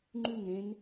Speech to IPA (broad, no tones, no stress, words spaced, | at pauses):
ŋ͡ǃʉŋ ɾẽn